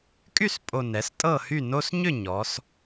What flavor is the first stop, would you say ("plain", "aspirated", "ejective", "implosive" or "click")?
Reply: ejective